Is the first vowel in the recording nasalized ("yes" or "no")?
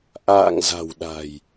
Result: no